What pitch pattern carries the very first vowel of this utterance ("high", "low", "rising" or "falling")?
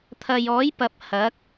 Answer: low